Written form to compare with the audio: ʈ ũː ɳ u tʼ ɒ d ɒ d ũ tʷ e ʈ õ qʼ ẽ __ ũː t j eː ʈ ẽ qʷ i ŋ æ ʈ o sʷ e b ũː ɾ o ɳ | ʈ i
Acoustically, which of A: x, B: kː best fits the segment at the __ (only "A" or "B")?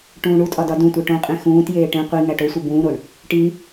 A